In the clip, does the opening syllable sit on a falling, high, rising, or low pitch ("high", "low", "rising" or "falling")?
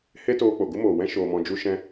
high